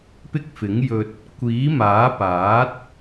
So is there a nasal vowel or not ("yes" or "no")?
no